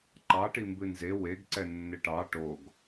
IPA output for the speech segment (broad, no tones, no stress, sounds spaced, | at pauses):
ǃ ɑ ʈ i m b ɨ n z e w e ɡ ǀ ɛ nː ɪ ʈ ɑ ʈ o ɡ